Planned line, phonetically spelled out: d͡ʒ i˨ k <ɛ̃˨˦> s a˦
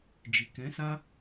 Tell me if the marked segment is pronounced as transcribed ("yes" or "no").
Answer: yes